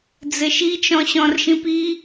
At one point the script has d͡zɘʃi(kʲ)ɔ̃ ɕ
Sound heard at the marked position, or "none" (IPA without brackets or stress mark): t͡ʃ